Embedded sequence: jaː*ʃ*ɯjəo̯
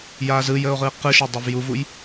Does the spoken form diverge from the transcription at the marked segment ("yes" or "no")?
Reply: yes